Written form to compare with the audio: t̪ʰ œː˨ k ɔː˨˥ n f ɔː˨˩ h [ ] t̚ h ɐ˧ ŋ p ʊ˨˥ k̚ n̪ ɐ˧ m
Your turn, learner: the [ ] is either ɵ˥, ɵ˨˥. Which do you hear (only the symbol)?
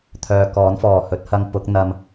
ɵ˨˥